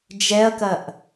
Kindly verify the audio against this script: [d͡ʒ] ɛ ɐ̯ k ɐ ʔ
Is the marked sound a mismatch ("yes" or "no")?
no